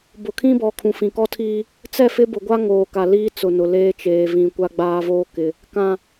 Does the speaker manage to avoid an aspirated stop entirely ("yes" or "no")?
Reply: no